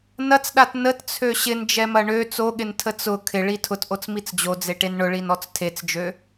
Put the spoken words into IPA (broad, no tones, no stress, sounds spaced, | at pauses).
n ɐ t͡s ɗ a t n ə t t͡sʰ ø ɕ ɪ n d͡ʒ ɛ m ɐ ɳ ø t͡s o ɠ ɪ n tʰ ə t͡s ʊ kʰ ɪ ɭ i tʰ ʊ t ʔ o t͡s m i t͡s d͡ʑ o d͡z e ʈ e n ɳ ʊ ɭ i n ɔ t͡s tʰ e t͡s d͡ʒ ø